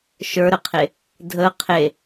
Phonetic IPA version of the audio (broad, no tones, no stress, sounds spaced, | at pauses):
ʃ ə˞ ɾ ə qʰ e | dʱ ə qʰ e